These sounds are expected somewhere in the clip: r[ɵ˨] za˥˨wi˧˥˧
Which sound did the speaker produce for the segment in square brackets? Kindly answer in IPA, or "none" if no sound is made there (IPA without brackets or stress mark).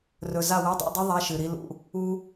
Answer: ɵ˨